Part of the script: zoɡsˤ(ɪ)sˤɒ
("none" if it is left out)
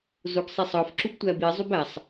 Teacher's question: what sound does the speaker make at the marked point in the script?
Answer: i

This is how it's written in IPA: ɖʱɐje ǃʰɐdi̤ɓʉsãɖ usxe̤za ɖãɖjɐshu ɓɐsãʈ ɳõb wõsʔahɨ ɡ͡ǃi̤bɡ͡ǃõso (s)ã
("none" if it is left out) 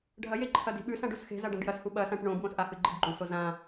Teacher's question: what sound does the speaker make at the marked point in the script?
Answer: z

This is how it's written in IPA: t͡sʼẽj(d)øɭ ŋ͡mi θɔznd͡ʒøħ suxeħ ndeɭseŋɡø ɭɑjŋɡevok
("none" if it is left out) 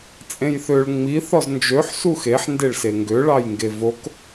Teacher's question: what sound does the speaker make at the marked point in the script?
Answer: θ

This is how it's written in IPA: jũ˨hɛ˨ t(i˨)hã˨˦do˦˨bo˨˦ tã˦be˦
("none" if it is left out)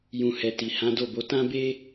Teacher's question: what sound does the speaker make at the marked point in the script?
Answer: i˨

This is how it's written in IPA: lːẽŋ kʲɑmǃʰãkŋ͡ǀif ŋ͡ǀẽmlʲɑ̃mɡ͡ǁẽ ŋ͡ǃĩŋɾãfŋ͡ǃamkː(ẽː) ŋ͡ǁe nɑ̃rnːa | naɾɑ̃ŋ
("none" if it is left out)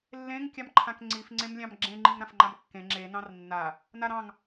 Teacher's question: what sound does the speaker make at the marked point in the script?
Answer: ẽ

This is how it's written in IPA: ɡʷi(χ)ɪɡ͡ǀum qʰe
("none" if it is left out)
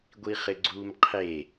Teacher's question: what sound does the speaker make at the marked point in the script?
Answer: χ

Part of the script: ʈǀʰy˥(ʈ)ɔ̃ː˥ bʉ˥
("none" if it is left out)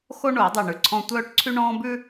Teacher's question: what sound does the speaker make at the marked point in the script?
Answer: ɳ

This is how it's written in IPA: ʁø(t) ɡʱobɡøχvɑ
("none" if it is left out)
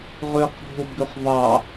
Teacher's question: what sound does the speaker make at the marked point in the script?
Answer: q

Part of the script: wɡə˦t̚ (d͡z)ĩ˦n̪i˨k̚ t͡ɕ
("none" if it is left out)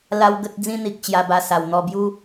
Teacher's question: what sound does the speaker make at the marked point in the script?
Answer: d͡z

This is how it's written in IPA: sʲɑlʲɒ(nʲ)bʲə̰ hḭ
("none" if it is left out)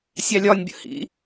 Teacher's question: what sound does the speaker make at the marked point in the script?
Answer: nʲ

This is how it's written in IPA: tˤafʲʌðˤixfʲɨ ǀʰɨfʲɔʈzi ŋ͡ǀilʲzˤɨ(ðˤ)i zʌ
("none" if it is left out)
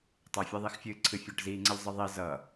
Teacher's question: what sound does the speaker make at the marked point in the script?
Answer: ðˤ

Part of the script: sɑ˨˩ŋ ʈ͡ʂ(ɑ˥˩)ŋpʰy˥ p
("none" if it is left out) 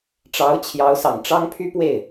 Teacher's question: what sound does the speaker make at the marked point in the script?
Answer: ɑ˥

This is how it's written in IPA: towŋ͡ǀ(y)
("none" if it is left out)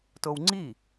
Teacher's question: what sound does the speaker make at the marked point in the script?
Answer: i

